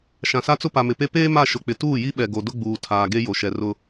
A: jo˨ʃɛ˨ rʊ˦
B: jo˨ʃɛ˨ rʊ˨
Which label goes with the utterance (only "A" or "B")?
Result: A